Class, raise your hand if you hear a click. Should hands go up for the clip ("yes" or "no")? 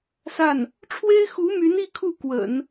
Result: no